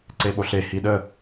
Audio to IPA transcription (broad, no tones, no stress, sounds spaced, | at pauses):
ǀ e ɓ o ɬ e h i ɗ ə